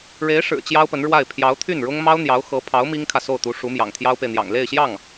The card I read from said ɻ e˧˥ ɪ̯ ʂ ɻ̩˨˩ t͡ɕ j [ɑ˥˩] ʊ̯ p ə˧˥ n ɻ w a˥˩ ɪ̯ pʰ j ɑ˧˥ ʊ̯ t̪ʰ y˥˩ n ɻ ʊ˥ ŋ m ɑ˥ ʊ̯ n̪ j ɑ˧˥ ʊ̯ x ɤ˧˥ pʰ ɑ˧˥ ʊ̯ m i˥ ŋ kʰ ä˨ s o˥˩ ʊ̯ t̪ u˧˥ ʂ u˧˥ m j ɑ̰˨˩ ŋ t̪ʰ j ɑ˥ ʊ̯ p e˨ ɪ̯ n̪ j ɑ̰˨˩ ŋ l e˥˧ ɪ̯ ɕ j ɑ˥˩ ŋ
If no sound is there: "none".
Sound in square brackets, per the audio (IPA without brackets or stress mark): ɑ˥